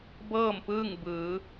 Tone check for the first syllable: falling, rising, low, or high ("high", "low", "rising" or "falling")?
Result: falling